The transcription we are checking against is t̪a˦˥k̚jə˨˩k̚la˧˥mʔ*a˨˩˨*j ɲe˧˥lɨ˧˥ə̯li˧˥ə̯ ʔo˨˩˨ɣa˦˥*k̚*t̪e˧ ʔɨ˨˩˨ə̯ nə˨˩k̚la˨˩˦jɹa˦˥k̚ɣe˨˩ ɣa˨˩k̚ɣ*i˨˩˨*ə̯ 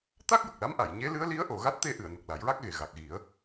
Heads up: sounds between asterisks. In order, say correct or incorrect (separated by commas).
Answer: correct, incorrect, incorrect